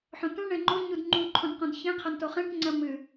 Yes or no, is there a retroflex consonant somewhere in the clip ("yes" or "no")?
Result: yes